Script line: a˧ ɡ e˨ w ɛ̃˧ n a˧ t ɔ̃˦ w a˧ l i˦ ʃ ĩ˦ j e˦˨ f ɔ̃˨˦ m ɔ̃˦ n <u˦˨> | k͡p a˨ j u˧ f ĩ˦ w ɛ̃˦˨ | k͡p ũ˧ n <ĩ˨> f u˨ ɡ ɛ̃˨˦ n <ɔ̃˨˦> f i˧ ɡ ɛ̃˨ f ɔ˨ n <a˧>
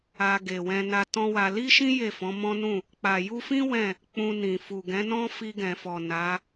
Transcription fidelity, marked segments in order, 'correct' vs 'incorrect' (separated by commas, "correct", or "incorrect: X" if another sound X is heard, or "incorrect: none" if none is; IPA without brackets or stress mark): incorrect: ũ˦˨, correct, incorrect: ɔ̃˦, incorrect: a˨˦